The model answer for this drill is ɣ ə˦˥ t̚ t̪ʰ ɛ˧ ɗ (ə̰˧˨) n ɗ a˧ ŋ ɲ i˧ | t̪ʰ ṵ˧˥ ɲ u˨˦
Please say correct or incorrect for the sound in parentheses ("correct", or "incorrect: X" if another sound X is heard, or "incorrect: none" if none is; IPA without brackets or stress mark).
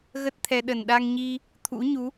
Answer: incorrect: ə˨˩